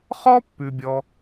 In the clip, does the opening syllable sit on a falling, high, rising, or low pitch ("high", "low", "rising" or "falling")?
high